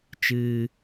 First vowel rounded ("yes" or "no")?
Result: no